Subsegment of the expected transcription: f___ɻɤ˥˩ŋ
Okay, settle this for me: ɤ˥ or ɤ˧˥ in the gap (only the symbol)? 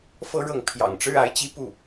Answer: ɤ˥